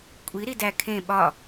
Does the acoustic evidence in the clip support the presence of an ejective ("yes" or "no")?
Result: yes